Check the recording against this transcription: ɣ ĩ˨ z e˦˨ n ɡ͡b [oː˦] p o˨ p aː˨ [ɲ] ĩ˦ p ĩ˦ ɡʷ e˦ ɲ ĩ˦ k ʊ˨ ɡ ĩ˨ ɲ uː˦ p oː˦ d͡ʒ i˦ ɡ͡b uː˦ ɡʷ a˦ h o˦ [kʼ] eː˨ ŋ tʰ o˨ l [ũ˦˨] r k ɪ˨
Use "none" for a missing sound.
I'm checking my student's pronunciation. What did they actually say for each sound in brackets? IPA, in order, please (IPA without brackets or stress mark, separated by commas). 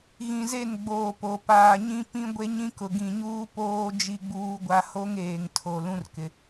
oː˨, ɲ, ŋ, ũ˦